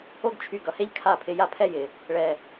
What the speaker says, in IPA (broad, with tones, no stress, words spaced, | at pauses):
o˦ɡt͡ʃʰy˧ ɡʌ˨he˦ʎ kʰa˦˨pʰɪ˧ja˦ pʰɛ˦jɪ˨ | ɭɛ˨